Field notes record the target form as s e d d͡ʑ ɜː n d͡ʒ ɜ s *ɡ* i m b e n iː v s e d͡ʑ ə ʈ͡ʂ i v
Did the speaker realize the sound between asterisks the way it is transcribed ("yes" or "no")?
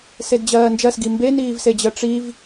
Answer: yes